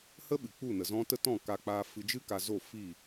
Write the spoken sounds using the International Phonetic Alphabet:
hə˦ ɓɨ˨k͡pu˦˨nə˨zɔ̃˦ tə˦tɔ̃˦˨ ka˧k͡paː˧fɨ˧ d͡ʒɨ˦ ka˧zo˦˨ fi˦˨

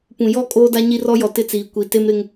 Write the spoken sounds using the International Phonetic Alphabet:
pũ˨jɔ˦˨ kʼoː˦da˦ ɲi˦rɔ˦jɔ˨ tɪ˦t͡siː˨ kʷi˨ te˦m ɾɪ˦ŋ

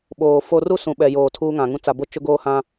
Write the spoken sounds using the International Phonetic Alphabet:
ɓoː˨ fo˦ ru˦ sũ˨ɓɛ˨joː˨ tʰuː˦ŋã˨ŋũ˦ t͡sa˨ bo˦ t͡ʃʊ˦ɡoː˦ hã˦

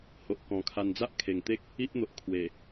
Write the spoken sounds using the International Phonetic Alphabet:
ho˨ʔkɔ̃˨˩kʰa˧n d͡za˦ʔkʰe˨˩ŋt̪e˦k̚ | i˦ʔn̪o˨ʔ kʰwe˨˩

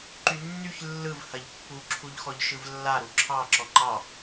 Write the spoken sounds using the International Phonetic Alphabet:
ǃynːyç lːɯv hɐʎpːu ǁʰuʎxɔʎʃɯvlːa ɾuǁʰɑ ǁɔŋ͡ǃɑ

